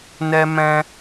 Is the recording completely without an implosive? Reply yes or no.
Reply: yes